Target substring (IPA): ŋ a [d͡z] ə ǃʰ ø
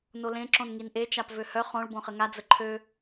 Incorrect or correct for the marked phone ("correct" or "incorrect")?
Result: correct